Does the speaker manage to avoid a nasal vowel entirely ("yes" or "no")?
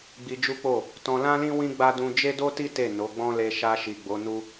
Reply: no